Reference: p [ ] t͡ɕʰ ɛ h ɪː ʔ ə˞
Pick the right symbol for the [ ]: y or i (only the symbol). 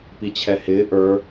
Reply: i